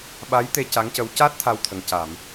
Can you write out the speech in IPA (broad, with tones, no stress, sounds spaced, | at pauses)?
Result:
ɓ a˧˥ j t̪ e˧ c a˧˥ ŋ c ə˧˥ w c aː˦˥ t̚ t̪ʰ a˧ w t̪ʰ ə˨˩ ŋ c a˨˩˨ m